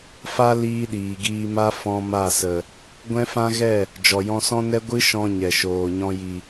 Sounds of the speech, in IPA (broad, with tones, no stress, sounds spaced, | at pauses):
f a˦ l iː˦ ɗ iː˨ ɡ iː˧ m a˦ f ɔ̃˧ m a˦˨ s ə˨ | ɡʷ ɛ̃˦ f ã˦ ɣ ɛ˦˨ | d͡ʒ ɔ˨ j ɔ̃˧ s ɔ̃˦ n ɛ˦ ɡʷ ɨ˦ ʃ ɔ̃˧ ɲ ɛ˨ ʃ oː˨ ɲ ɔ̃˧ j i˨